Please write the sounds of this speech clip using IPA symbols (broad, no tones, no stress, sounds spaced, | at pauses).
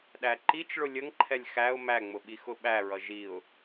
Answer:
ɗ æ ǃ i t͡ʃ ɭ ʊ lʲ ə ŋ ǃʰ ɛ lʲ x æ ʊ̯ m æ ŋ͡m ʊ ɓ i x ʊ ɓ æ ɹ ʌ ʒ i ʊ̯